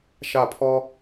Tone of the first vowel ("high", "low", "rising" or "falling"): falling